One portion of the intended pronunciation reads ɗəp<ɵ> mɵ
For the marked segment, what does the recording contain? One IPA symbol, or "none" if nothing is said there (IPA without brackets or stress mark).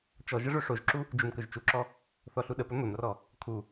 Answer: ɵ